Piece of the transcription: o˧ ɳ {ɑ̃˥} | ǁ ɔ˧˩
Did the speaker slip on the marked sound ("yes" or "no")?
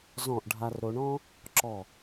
yes